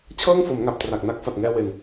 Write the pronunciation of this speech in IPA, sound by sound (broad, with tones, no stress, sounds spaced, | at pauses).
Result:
t͡ɕʰ ɤː˥˩ ŋ f o˩˦ m ŋ a˨˩ p̚ t r a˨˩ k̚ n a˦˥ k̚ f a˨˩ t̚ ŋ ɛː˧ w e˨˩ n